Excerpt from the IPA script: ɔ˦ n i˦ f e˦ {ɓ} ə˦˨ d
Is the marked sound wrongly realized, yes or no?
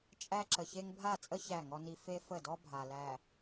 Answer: yes